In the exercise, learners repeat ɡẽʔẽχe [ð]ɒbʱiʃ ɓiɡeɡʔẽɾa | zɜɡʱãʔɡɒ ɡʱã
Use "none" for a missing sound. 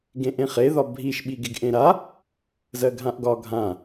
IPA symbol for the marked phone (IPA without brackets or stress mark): ð